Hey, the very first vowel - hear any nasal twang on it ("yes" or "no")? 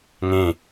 yes